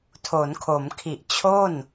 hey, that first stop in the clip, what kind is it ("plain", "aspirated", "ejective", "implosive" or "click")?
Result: aspirated